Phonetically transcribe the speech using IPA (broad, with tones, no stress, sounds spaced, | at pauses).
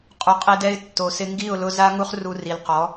qʼ u˨ qʼ e˧ d ɛ˧ ɪ̯ tː o˨ s ɪ˧ ŋ ɡ i˦˨ ʊ̯ l ʊ˧ z a˦ ŋ u˦ χ r u˧ r i˨ l q ɔ˨˦